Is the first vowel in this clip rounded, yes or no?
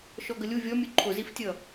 yes